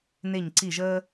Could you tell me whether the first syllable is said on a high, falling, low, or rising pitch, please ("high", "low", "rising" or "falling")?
falling